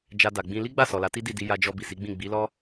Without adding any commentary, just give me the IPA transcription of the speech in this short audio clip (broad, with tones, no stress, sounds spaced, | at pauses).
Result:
d͡ʒ a˧ d a˨ ɡ͡b ĩ˧ l i˦ ɡ͡b a˦˨ s ɔ˨ l a˨˦ t i˦ d i˦˨ d i˧ j a˧ d͡ʒ ɔ˧ b i˨ s i˨˦ ɡ͡b ĩ˦˨ ɡ͡b i˨˦ l ɔ˦